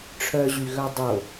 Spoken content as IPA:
ʈ͡ʂʰ œ ʑ y ɣ œ dˤ o

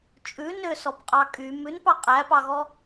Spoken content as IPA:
t͡ʃʼ ʉ n ø s ɔ p qʼ ɑ kʼ y m ʉ n p ɑ qʼ æ p ɑ ɣ ɔ

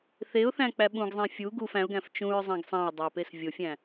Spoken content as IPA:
θ e ʊ̯ θ æ̃ k͡p æ ɓ ũ ɡ zˤ ẽ fʲ u ɡ u f æ̃ ʊ̯ ɡ æ̃ f t͡ʃ ũ ɹ zˤ æ̃ ɡ sˤ æ̃ ʊ̯ dˤ æ p e s vʲ o fʲ æ̃

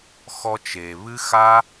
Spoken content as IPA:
x ɔ˧ t͡ʃ e˨ β ɨ˦ x a˦

